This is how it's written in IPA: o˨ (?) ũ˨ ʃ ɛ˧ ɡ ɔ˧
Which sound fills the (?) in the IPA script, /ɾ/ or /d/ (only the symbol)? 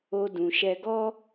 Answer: d